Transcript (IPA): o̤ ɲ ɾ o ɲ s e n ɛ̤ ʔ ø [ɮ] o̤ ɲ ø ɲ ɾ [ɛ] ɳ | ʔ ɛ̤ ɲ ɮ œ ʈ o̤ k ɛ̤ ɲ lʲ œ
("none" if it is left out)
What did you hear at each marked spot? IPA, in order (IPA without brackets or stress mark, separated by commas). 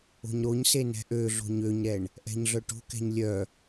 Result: ɮ, ɛ